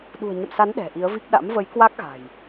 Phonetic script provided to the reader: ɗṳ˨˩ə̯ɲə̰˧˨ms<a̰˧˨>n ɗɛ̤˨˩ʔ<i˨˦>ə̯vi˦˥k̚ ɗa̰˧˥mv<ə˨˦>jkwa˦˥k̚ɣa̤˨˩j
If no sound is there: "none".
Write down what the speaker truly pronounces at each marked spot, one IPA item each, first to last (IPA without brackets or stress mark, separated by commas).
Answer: a˨˦, i˨˦, ə˨˦